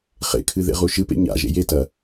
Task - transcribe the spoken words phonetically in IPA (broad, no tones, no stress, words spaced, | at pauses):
χḛkʰɨ ðḛʁuʃɨpḛ ɲa̰ ʒḛjetɐ